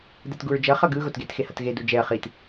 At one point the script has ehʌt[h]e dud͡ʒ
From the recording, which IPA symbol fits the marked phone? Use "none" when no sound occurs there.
ɣ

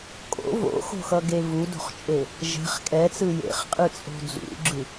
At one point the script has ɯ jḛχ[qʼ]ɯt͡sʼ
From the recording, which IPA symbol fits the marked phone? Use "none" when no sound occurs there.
qʼ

